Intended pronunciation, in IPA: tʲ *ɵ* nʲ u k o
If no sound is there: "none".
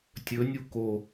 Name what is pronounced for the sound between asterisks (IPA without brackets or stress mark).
ɵ